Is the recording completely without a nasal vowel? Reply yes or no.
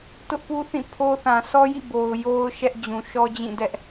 no